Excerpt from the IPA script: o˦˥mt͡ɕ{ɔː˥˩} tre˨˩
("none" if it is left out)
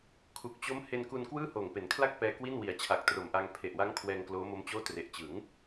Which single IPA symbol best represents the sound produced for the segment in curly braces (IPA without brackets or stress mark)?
oː˥˩